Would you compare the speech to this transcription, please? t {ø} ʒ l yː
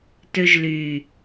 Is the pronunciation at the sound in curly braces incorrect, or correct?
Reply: correct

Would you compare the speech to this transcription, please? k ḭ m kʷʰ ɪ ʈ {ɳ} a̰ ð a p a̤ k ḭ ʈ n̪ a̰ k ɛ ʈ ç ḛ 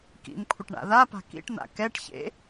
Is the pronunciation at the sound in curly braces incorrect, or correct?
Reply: correct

